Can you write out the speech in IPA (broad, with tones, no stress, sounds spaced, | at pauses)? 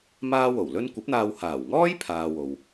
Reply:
m aː˥ w o˨˩ w l ɵ˥ n kʷ ɐ˨˥ p̚ n̪ aː˧ w h aː˨˩ w ŋ ɔː˥ j pʰ aː˨ w o˨ w